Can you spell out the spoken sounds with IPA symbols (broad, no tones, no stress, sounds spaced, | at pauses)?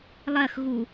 lˠ ɜ x ɣ u